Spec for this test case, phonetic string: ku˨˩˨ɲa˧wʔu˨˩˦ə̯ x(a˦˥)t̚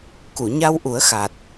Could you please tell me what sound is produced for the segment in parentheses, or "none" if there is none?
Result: a˨˩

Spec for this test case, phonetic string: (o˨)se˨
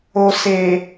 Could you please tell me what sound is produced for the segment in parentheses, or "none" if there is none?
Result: o˨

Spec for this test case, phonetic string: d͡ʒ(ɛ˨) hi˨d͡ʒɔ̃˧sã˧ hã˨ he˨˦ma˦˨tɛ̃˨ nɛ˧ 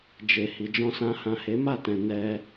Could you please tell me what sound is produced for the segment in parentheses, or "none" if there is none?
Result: e˨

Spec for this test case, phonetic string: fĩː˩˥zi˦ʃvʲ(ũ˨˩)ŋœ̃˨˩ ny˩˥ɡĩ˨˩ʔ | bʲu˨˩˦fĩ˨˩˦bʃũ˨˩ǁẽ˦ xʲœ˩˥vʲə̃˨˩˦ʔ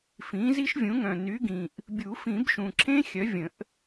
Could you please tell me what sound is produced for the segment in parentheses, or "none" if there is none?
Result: ũ˩˥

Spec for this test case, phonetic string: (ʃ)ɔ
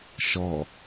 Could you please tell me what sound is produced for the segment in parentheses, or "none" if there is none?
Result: ʃ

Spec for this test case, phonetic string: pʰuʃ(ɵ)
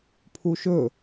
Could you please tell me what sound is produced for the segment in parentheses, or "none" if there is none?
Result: ɵ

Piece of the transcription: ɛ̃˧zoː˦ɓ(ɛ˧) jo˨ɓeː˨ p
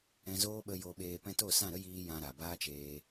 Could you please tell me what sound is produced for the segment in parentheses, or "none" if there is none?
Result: ə˧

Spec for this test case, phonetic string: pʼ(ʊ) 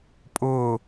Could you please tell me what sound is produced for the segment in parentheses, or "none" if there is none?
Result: ʊ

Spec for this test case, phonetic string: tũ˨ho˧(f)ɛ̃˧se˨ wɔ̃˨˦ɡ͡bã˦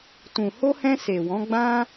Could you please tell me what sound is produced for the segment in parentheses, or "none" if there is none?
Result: h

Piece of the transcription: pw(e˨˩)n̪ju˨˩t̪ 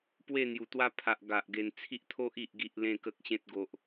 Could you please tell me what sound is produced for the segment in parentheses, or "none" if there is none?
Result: e˥˧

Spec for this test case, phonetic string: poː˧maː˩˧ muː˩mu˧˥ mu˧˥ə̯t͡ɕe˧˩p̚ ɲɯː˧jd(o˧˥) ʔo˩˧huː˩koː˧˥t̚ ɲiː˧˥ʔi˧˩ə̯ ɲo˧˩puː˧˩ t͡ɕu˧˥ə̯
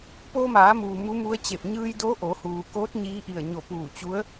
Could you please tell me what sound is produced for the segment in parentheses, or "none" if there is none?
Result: o˧˥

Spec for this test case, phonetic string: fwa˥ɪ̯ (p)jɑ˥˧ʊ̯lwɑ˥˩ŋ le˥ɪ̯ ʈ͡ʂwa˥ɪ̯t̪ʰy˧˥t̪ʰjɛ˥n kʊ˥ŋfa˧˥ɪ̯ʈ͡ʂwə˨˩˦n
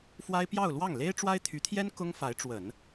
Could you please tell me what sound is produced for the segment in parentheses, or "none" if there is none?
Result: p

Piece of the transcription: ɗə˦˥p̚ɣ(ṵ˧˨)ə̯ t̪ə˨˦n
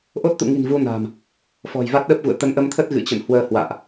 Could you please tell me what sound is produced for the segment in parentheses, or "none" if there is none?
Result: ṵ˧˨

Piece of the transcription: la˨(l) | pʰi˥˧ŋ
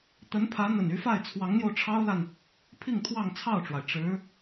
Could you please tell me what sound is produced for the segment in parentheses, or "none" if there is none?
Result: n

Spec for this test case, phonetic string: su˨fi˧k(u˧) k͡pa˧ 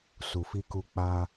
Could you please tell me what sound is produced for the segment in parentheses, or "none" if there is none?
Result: u˧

